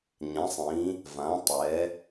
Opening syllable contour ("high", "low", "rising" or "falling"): rising